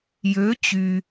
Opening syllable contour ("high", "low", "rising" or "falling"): rising